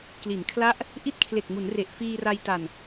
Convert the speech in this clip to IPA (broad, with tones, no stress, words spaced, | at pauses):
kli˩˦nkʰla˦˥ʔ | ʔi˥˩t̚kʰle˨˩k̚mu˩˦nre˨˩ʔ fiː˧ra˧jta˨˩n